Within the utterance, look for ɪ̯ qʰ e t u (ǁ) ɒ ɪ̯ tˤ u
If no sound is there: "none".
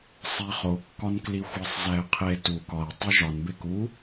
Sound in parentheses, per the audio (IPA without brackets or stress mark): k